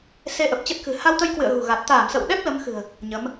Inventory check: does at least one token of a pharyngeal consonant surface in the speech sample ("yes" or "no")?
no